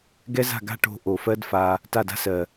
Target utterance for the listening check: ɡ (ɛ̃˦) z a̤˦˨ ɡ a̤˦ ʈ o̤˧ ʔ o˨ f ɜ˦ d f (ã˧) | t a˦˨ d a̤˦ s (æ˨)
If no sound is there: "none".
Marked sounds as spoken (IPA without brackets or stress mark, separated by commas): ɛ˦, a˧, ɜ˨